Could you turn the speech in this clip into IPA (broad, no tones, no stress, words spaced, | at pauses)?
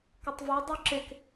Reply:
kʏtˤvo dˤuǁek